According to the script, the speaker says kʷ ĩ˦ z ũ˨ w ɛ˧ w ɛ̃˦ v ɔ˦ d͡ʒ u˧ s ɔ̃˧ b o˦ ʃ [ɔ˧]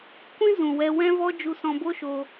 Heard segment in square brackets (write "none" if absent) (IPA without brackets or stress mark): o˧